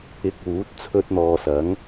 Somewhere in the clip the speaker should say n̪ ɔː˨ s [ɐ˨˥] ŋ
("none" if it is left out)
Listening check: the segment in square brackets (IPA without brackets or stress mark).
ɐ˨˥